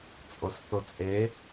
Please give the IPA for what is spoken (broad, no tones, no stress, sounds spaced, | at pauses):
t͡sʼ o s θ o t͡sʼ e